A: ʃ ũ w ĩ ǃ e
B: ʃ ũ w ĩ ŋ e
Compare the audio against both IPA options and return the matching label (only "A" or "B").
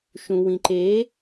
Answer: A